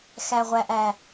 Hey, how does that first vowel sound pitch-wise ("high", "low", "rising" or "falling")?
low